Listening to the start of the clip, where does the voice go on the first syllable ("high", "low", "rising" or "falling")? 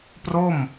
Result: falling